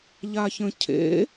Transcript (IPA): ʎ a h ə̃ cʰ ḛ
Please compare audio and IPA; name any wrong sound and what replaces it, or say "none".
h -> ç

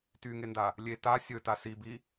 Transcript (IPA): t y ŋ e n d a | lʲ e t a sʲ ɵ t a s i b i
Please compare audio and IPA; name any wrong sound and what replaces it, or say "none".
none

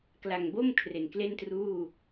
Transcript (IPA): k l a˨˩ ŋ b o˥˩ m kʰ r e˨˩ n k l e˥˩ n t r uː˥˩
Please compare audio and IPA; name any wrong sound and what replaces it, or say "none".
none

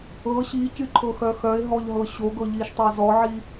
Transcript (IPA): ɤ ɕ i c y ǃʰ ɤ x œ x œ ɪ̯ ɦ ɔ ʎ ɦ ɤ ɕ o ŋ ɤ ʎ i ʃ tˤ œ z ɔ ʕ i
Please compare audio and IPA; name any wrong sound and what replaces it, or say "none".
ŋ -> ɡ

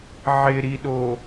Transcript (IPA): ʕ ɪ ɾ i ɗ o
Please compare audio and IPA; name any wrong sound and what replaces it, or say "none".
none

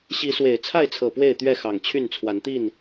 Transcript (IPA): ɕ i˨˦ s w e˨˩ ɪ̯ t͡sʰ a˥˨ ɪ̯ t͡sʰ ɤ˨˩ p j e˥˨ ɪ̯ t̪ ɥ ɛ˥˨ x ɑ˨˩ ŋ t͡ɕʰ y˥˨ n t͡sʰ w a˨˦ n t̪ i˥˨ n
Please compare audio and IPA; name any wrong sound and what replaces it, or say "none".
j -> w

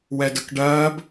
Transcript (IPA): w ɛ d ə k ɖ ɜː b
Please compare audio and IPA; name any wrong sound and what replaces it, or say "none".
none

